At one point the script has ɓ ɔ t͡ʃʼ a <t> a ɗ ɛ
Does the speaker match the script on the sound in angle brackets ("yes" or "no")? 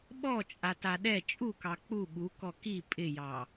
yes